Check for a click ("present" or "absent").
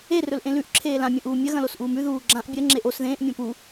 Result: present